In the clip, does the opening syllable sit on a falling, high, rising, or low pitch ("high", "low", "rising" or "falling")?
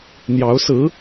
rising